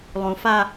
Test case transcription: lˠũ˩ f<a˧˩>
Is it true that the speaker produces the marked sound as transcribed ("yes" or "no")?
no